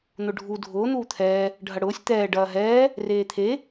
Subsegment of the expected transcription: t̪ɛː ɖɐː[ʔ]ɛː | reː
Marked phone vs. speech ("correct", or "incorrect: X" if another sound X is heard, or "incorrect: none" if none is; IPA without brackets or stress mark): incorrect: ɦ